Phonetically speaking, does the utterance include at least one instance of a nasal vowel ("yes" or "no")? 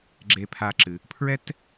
no